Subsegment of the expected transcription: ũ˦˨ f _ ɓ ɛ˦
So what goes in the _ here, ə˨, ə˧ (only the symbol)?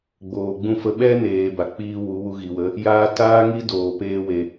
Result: ə˧